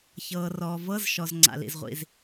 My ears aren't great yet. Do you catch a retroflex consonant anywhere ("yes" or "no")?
no